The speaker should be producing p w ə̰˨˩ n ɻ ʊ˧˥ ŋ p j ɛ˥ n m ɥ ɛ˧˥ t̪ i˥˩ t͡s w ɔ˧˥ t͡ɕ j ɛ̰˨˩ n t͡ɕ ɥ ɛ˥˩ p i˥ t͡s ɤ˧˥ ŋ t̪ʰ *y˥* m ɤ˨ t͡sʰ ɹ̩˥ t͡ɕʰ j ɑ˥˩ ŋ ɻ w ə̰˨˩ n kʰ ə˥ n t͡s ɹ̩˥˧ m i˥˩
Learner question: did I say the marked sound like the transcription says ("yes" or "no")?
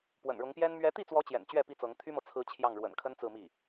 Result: yes